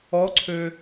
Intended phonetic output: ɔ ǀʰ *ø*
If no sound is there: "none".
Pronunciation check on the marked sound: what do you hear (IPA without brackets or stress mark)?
ø